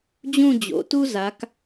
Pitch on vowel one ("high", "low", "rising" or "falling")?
falling